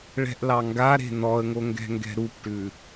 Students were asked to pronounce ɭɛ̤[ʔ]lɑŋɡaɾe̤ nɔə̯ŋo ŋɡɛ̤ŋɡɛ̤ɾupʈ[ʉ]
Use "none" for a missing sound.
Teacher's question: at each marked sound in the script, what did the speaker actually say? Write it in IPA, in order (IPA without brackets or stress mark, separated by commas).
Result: ʔ, ʉ